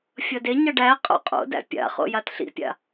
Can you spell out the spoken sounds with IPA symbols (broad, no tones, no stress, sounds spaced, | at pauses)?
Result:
fʲ ʌ d e ɲ ʌ ɖ æ qʼ o̰ qʼ o̰ d æ̰ pʲ a̰ χ o̰ j a t ɬ ḭ pʲ a̰